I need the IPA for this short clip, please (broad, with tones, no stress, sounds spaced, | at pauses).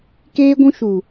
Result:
k eː˦ ɡʷ ũ˦ ʃ u˨